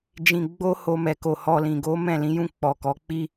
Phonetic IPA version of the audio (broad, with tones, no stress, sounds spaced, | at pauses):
d͡ʒ ĩ˧ ɡ͡b o˦ h o˧ m ɛ˨ k o˨ h ɔ˧ l ĩ˨ ɡ o˨˦ m ɛ̃˦˨ l ĩ˨˦ j ũ˦˨ k͡p ɔ˨ k ɔ˨˦ k͡p i˦